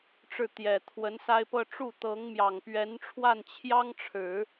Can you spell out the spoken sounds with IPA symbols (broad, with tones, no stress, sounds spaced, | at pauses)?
ʈ͡ʂ ɻ̩˥˩ t̪ j ɛ˨˩ t̪ʰ w ə˧˥ n s a˥ ɪ̯ p ɤ˥˧ ʈ͡ʂ u˥˩ t̪ ɤ˧˥ ŋ m j ɑ˨˩ ŋ p ɥ ɛ˧˥ n ʈ͡ʂʰ w a˥˩ n t͡ɕʰ j ɑ˥ ŋ ʈ͡ʂʰ ɻ̩˨˩˦